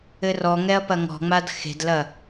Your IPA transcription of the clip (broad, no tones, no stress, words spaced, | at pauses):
ɘrɔŋɛɐ̯ pɐŋɔ̤ŋ͡mad xe̤dlɐ